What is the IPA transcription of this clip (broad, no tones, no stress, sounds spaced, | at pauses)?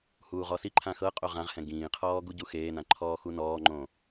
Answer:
h uː ʁ ɔ s i ǃʰ ã x ɤ qʼ o ʁ ã ʁ h ɛ̃ ɡ ĩː qʰ ɔː ɡ u ɟ u x eː n ã ǃʰ ɔː x u n ɔː ŋ͡ǃ õ